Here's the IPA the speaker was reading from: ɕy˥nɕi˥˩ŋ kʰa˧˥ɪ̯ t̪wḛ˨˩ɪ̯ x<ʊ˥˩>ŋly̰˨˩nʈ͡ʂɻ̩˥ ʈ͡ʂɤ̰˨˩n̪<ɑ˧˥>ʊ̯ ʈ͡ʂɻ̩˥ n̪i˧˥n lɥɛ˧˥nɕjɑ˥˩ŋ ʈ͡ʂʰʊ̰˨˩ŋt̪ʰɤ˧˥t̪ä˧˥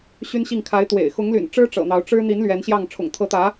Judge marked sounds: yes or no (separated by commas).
no, yes